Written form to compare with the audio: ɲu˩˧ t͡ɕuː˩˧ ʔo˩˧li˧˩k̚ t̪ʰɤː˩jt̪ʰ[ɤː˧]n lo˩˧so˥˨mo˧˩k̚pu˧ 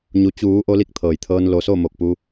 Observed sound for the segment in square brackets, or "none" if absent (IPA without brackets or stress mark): ɤː˧